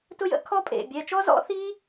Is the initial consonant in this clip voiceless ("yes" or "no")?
yes